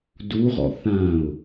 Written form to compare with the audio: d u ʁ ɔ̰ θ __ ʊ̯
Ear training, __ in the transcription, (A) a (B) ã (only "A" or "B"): B